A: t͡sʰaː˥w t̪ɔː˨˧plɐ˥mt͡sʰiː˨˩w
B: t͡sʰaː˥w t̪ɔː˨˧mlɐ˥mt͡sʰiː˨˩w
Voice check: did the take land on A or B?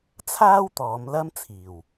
B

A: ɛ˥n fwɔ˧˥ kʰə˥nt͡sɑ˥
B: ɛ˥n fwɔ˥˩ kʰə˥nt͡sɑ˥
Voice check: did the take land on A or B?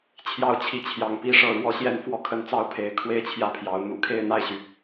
B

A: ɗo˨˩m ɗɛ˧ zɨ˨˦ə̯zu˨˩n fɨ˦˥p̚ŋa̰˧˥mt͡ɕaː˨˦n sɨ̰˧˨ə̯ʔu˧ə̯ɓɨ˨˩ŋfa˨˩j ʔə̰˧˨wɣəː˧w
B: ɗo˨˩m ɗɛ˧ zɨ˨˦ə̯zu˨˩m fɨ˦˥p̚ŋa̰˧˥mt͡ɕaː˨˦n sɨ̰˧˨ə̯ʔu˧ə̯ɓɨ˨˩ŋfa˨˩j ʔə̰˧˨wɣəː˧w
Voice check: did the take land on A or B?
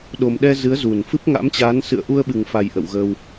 A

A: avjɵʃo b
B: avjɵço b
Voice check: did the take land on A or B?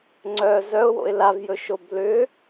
A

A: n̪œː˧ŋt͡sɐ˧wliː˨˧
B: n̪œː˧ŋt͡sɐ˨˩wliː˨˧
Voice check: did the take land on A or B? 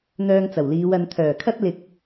B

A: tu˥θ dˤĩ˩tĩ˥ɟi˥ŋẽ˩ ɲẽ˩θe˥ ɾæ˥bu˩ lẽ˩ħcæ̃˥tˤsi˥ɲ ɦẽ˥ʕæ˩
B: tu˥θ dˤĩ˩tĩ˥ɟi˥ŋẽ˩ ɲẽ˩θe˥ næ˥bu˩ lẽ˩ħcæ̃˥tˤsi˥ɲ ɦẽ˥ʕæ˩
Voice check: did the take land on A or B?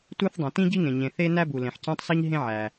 B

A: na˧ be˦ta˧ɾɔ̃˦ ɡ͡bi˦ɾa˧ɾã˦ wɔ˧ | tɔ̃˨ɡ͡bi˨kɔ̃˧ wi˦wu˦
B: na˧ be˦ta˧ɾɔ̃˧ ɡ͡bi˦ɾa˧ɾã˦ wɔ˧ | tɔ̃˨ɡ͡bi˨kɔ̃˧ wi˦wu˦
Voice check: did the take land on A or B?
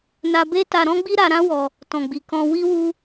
A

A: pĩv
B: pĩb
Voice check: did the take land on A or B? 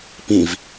A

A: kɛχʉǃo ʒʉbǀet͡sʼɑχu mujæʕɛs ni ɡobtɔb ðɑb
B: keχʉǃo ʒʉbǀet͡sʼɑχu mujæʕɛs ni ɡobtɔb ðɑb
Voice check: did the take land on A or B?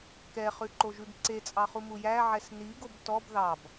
A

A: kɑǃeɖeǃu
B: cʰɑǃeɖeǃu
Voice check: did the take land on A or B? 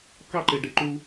A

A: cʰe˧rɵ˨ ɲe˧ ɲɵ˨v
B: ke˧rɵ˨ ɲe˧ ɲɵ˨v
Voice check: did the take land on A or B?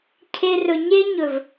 A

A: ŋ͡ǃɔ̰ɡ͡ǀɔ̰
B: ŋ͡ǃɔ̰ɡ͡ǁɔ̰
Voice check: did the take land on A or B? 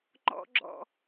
B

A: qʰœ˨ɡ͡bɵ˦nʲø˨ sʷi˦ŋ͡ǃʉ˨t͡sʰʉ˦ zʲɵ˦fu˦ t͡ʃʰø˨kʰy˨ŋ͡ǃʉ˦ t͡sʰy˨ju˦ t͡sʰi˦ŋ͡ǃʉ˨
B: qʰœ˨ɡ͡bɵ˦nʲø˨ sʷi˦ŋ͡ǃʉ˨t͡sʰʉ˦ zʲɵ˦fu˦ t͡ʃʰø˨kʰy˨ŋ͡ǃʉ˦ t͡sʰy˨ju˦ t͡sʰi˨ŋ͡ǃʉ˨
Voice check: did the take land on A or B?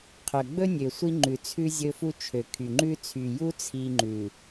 A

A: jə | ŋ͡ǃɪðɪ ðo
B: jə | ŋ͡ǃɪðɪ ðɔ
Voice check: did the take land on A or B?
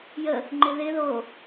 A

